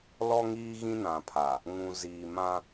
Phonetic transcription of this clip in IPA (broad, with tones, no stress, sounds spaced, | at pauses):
l ɔ˦ ŋ iː˦ ɣ ĩ˦ n ã˨ pʰ a˨ | ŋ ũ˨ z iː˨ m ã˦